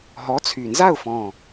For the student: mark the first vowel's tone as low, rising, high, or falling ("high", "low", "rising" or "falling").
rising